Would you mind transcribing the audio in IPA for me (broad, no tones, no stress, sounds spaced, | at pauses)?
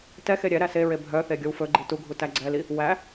t ɛ x e ɾʲ ɛ ɾ æ s e ɹ e bʱ œ θ e ɡʲ o w f ɵ ɡ͡ǃ i t u ɡʱ u t æ ɡ͡ǀ ɛ l i | w æ